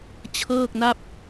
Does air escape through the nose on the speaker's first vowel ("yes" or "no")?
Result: no